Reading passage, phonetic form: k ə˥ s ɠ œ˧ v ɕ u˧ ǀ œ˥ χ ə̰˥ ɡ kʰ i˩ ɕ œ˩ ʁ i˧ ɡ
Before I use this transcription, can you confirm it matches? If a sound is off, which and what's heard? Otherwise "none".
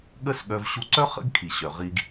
k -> ɠ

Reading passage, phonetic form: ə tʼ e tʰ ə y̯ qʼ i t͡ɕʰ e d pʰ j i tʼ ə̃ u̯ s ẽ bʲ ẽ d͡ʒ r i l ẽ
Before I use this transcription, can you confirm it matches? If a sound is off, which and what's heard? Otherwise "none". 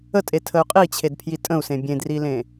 d͡ʒ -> d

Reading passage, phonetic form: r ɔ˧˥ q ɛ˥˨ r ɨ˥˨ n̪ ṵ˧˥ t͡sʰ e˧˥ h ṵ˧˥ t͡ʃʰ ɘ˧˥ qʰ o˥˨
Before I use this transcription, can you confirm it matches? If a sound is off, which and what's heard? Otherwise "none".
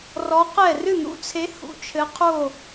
none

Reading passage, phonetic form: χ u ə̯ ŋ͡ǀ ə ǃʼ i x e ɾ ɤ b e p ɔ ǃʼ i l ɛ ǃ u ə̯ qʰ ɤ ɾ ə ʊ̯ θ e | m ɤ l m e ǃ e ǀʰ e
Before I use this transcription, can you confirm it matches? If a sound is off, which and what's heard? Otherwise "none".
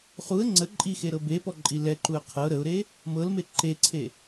θ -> ɾ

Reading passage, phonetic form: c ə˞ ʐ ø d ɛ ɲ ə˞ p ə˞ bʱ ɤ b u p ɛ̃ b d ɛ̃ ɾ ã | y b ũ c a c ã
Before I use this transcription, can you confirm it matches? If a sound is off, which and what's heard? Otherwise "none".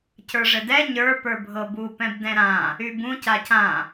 ø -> ɘ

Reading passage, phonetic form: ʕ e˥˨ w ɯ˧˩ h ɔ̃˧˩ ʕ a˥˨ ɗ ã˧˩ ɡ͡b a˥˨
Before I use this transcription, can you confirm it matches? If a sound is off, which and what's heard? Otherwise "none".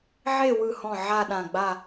none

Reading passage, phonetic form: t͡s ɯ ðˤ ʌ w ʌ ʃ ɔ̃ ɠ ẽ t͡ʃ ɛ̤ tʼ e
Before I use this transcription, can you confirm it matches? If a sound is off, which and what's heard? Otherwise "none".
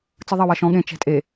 none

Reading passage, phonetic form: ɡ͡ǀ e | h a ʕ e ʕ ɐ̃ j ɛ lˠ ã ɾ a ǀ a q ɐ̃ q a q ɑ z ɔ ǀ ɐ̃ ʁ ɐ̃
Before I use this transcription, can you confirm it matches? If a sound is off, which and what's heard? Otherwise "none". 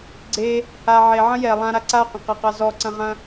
none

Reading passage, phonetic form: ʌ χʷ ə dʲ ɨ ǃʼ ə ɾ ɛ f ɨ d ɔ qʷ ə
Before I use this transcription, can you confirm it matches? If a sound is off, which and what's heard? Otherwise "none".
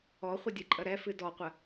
ʌ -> ɔ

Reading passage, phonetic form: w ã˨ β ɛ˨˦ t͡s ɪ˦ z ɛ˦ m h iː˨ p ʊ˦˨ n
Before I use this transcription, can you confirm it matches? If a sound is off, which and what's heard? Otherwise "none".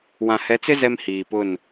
β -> h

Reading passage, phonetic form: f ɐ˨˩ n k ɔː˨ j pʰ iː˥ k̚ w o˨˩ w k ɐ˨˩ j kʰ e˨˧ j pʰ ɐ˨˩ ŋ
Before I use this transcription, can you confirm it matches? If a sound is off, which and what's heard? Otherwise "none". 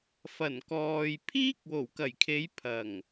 none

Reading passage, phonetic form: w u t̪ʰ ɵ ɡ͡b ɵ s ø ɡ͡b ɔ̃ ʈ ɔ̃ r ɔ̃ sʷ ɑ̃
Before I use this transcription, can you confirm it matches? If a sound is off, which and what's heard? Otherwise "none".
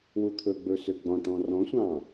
none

